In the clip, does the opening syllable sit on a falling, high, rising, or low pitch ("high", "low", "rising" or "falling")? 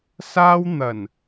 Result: high